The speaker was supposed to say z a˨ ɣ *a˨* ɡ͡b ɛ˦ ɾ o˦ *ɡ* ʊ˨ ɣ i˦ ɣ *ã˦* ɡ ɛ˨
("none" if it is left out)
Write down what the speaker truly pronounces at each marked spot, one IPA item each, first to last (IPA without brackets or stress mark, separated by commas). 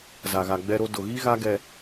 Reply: a˨, d, a˦